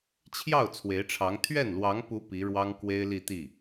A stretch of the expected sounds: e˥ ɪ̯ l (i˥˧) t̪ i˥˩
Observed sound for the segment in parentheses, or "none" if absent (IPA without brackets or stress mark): i˥˧